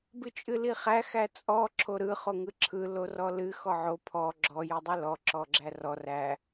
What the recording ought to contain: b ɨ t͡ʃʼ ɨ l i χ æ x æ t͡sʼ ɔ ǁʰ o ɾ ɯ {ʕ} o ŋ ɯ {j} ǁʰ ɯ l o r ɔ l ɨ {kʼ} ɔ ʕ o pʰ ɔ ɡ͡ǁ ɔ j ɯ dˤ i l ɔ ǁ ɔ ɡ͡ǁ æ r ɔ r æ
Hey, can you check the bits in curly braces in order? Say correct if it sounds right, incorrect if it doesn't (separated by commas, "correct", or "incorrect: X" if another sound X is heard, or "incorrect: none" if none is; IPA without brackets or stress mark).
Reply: incorrect: χ, incorrect: none, incorrect: x